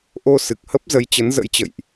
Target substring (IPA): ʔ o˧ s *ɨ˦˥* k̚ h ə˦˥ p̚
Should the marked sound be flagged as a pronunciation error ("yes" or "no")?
yes